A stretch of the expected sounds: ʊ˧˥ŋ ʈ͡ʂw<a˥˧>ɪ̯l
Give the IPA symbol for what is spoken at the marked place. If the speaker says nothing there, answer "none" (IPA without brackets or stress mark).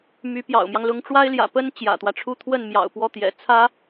a˥